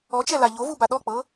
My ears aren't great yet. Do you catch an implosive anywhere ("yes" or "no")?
yes